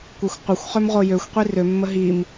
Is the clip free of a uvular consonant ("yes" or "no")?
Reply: no